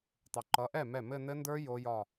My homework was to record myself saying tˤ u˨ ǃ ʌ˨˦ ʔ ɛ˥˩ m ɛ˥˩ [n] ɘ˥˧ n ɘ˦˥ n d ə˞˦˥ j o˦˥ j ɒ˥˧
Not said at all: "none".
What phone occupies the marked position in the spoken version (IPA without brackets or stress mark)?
m